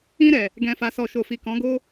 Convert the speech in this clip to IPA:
ĩ˧ ɾ ɛ˨ | ɡ ɛ̃˨ f a˨ s ɔ˨ ʃ o˨ f i˨ k ɔ̃˨˦ ɡ o˦

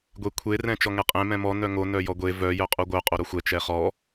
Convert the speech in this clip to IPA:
ɡʷ e kʷʰ e r ɛ̃ t͡ʃ ɔ ŋ ɛ qʼ ẽ m ɛ̃ m ɔ n œ ŋ o n œ j ɔ ɡʷ e v œ j œ qʼ u ɡʷ œ qʼ o ɾ o xʷ ɛ t͡ʃ ɛ χ ɔ

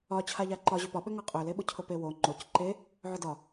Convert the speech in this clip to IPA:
ɒ t͡ɕʰ a ʎ a ǃ ɒ ʑ ø p ɒ ɓ ø ŋ ɒ qʼ ø l e ɓ ʊ cʰ ʊ p e w o ŋ͡ǃ o c ǃ e | ʕ ʊ d ɒ

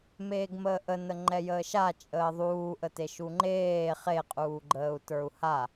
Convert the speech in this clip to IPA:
m eː ɡ m əː ʔ ə n ə ŋ͡ǃ ɛ j əː ʃ a t͡ʃʼ əː ðˤ uː ʔ ə t e ʃ u ŋ͡ǃ eː χ e qʼ uː ɡ͡ǃ əː u̯ t ə˞ u̯ h a

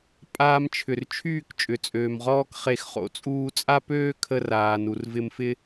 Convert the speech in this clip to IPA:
pʼ aː˧ m t͡ʃʰ ʏ˨ r t͡ʃʰ yː˦˨ k t͡ʃʼ ʏ˨ t͡sʼ øː˨ m ʁ ɔː˦ k χ e˧ x χ o̰˨ t͡sʼ uː˧ t͡sʼ a˦ p øː˦ kʰ ə˧ r aː˨ n u˨ r v ɪ˧ m f ɪ˦

